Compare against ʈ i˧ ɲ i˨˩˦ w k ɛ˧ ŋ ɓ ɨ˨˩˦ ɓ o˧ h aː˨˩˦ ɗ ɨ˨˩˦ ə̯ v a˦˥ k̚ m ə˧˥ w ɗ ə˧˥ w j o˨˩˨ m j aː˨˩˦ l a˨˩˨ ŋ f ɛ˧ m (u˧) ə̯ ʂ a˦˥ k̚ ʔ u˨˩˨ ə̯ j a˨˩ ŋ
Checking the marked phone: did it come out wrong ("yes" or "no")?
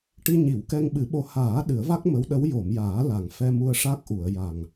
no